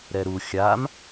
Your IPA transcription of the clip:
ɾ ɛ ɾ u xʲ a m

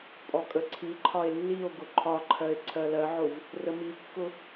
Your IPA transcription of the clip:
pʼ ɔ kʼ ə ǀʰ i ǃʰ ɒ e̯ lː i o̯ ɡ ʊ ǃʰ ɒ ǃʰ ɜ e̯ ǀʰ ɜ l ɜ ʕ ʊ v | r ə m i kː ʊ

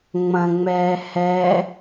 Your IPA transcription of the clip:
ŋ͡m ɐ̃ ŋ͡m ɛː h ɛ

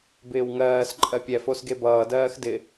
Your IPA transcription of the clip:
b ɪː w ŋ ɜː s ǃʼ ɜ pʲ ɛ f o s ɡ e b ʌː d ɜː x d ɪ

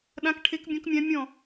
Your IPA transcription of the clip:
ɗ ã˧˥ k ʈʰ e˧˥ k bʲ ɔ̃˧˥ k mʲ ã˧˥ mʲ ɔ̃˦˨

